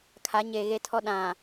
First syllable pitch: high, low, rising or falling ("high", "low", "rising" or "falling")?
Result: rising